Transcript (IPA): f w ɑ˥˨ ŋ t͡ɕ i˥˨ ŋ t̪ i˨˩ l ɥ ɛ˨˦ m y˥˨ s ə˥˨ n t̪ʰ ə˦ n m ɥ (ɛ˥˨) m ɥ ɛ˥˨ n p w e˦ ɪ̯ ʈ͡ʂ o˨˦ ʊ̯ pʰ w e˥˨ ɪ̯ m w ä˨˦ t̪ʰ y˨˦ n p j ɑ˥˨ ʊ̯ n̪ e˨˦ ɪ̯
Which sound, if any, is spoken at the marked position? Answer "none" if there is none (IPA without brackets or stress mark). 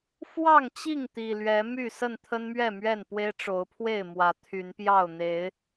ɛ˥˨